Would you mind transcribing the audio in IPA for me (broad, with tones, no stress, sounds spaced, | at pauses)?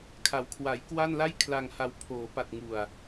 kʰ a˩˦ w kʰ w a˩˦ j k w a˥˩ n l a˥˩ j kʰ l a˧ ŋ h a˧ w pʰ oː˩˦ p a˨˩ t̚ ŋ u˨˩ a̯